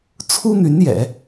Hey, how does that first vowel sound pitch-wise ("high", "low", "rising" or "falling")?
high